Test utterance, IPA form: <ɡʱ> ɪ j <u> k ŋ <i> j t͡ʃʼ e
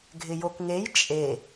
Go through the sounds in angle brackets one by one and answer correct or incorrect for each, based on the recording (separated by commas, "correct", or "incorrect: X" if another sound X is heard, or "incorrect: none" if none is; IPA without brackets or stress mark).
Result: correct, incorrect: o, incorrect: e